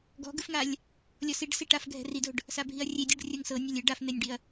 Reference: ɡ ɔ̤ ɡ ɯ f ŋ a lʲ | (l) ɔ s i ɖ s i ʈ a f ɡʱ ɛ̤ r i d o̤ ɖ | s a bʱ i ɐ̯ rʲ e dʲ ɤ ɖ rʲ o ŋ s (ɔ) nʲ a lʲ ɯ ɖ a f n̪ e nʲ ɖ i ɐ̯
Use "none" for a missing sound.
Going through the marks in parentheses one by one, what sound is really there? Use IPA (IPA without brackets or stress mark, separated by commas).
lʲ, ɤ